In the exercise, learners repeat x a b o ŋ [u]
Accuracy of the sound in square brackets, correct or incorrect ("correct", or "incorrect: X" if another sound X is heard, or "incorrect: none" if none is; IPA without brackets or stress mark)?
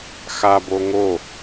incorrect: o